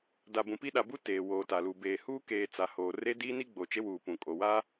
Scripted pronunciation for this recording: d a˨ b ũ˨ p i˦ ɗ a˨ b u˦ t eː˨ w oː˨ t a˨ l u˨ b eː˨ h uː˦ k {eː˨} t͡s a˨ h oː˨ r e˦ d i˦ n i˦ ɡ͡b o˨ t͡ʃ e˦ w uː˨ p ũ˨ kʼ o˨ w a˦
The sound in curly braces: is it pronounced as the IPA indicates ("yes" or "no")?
yes